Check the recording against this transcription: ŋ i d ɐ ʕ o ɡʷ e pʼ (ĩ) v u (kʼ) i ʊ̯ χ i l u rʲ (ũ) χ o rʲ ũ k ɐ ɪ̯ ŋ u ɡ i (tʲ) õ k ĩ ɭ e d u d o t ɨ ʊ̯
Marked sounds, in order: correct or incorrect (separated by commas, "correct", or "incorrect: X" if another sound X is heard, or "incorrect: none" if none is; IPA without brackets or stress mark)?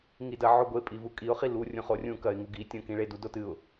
incorrect: i, correct, correct, correct